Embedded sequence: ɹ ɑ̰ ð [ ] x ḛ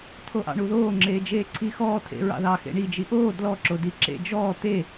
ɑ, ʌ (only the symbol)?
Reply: ɑ